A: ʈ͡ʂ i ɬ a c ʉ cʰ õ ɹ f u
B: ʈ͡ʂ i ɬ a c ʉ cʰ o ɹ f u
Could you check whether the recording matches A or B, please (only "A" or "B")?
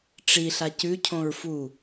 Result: A